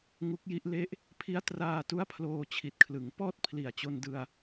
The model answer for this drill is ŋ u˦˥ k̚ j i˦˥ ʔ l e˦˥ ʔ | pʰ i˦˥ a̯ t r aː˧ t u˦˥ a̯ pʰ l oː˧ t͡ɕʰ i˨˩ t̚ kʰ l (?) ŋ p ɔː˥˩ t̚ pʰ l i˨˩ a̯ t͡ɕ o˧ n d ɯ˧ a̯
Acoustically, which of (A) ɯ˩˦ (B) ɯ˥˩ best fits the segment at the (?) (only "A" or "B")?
A